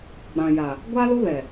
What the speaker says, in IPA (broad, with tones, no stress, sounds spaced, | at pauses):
ɡ͡b ã˨ j a˨ | ɡʷ a˦ l ʊ˦ β ɛ˨